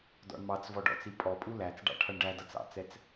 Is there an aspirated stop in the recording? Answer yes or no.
yes